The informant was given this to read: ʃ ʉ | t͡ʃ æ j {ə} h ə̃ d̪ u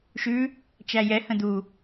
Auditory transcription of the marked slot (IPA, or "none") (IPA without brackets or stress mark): ɛ